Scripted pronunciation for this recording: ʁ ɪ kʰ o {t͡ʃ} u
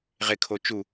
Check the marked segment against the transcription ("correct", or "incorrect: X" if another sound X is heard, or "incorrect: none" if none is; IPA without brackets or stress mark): correct